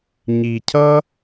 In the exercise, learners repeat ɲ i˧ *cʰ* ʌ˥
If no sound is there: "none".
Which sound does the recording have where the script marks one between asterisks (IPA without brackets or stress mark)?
cʰ